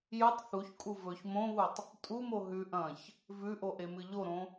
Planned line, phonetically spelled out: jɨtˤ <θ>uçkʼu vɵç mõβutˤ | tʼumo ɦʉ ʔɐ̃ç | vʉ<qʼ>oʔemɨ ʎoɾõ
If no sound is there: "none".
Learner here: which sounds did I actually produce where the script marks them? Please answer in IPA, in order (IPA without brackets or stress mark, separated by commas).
θ, ʔ